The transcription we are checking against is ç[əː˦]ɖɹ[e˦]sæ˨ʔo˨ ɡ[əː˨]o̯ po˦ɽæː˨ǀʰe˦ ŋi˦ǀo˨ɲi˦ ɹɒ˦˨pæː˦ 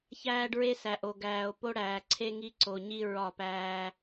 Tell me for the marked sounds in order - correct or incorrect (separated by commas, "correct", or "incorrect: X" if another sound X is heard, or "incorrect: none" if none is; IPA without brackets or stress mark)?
incorrect: æː˦, correct, incorrect: æː˨